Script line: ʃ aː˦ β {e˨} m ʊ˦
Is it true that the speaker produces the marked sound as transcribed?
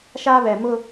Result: no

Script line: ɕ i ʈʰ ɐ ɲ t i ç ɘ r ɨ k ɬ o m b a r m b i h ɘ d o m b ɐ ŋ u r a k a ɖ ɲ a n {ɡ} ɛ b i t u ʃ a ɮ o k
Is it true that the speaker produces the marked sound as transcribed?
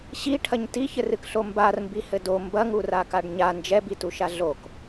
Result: no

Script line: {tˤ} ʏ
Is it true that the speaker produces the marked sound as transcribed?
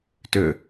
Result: no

